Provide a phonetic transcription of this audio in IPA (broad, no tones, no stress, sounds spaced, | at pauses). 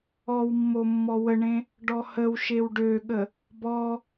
ɔ w mː o mː ɔ w ə ɳ ẽ | ɖ ɔ h ə w ʃ e w ɖ ø ɠ ə | b ɔ